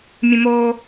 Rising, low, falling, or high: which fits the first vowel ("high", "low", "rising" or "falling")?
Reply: high